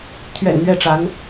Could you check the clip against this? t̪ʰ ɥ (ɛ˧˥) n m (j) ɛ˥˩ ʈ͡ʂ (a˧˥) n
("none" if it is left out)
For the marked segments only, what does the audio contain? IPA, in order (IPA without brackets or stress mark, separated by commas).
ɛ̰˨˩, ɥ, a˧˥